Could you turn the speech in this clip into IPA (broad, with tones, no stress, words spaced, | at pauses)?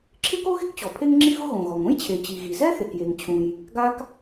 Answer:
ǁʰɪ˥ko˥ɣɪ˥kt͡ɕɔ˩ pʰe˥ŋŋ͡ǁi˥ɣʊ˥ ɣõ˩ɣɔ˩ŋ õ˥jt͡ɕʰe˩ t͡ɕi˩ɣi˩ zɛ˥θe˩kje˩ŋt͡ɕʰũ˩j | ɡa˥k